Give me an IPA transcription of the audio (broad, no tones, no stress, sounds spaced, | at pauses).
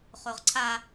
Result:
χ o ʁ ǀʰ a